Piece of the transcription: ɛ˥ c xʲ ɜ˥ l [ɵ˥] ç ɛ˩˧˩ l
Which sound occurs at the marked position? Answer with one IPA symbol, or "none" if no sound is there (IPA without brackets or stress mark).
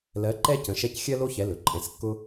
o˥